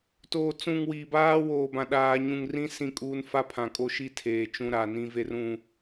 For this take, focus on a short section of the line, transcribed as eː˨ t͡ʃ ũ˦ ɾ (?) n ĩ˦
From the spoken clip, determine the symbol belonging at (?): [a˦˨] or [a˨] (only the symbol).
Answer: a˨